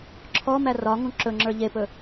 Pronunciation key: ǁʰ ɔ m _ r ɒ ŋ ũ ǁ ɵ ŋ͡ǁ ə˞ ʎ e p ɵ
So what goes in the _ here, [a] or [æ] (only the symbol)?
æ